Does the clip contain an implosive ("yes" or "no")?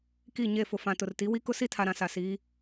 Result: no